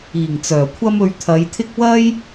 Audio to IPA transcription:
iː˨˩ŋ t͡sœː˨˩kʷʰɐ˥mɵ˧ɥ t̪ʰɐ˨˧jt̪ʰɪ˥k̚ wɐ˥j

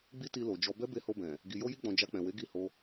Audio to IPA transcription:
ɡ͡bi˦ti˧lo˨ d͡ʒɔ˧ bɛ˦be˧ho˧bɛ̃˨ | ɡi˨jo˧ji˧ɡ͡bɔ̃˨ d͡ʒa˧k͡pɛ̃˨ we˨˦ɡi˦˨ho˧

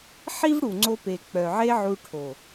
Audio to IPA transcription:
ħi˦vɽu˨ŋ͡ǀo˧pe˨ k͡pœ˨ʕe˦ ʕu˧ʈʰo˨

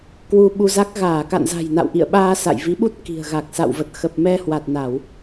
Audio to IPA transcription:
kwu˧ɓu˧za˦˥k̚ ɣaː˧˩ka̰˧˨nza̤˨˩j na̰˧˨wʔḭ˧˨ə̯ɓaː˧ sa̰˧˨jvi˨˦ɓu˦˥t̚ ki̤˨˩ə̯ɣa˨˩k̚ sa̰˧˨wvə˨˩t̚xə˨˩p̚ mɛ˧hwa˨˩t̚na˧˩˨w

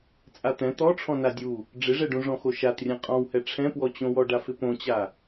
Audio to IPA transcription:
t͡sʼat̪ɛ̃ t̪ɔ ʈ͡ʂʰɔ̃nadʲu | ɖ͡ʐɪʐɛɖũ ʐɔ̃xoʃatrʲɛ̃ qʼɔ̃whɛ ʈ͡ʂʰɛ̃pwɔt͡ɕõwɔ ɖafɪpõt͡ɕa

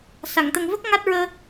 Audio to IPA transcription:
sa˨˩˨ŋ t̪ə˨˩ŋvə˦˥k̚ ŋa˦˥t̚ ɹəː˧

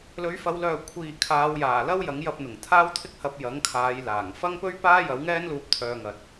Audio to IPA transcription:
lɵ˨˧ɥfɐ˨˧wlœː˨kʷʰiː˨ kʰaː˨˧wjaː˨˩lɐ˥w jɐ˨˥ŋjɐ˧p̚n̪ʊ˨˩ŋ t̪ʰaː˥wt̪ʰɪ˥k̚hɐ˧p̚ jɐ˨˥ŋkʰaː˨˧j laː˨˩ŋ fɐ˥ŋpɵ˥ɥ paː˥jɐ˨˥wŋɛː˥nluː˧p̚ t̪ʰœː˧ŋɐ˨t̚

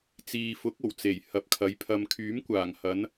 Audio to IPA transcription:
t͡siː˨fʊ˨˥k̚o˨˩w t͡se˨˩jhɐ˨p̚kʰɐ˨˧j pʰɐ˨mkʰyː˨˥mkʷaː˨˩ŋ hɐ˨˧n

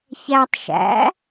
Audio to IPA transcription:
çætˤ ʃæ̰

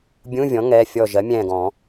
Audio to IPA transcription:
bʲũ˧˥˧vʲɔ̃˩˥ ŋɛ˩˧˩ fʲɔ˧˩ʒɜ˩˥mʲɛ̃ː˧˩ɡ ɔ̃˨˩˦

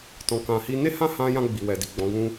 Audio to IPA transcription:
tɔ̃˨kã˨hi˧ ne˦hã˦hã˧jã˧ ɡ͡bi˨wɛ˨di˨ ɡ͡bɔ̃˨˦ɡũ˦

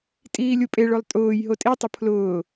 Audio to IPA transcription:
tʼiːlʲupʼeɭolˠ tʼʊːj ɦotʼitˤʊ pʰlʊː

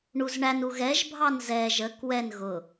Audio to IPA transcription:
ɳuzɳænu ɣɛʒ bʱɑnzɛ ʒə kwɛn ɣʊ

